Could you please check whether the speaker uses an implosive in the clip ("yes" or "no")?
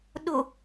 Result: yes